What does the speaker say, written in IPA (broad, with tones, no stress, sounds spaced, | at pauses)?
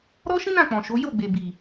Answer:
ɾ ɔ˦ ʃ ĩ˦ n ã˦˨ k͡p ɔ̃˨ ʃ o˨˦ j o˦˨ ɡ͡b e˨ b i˨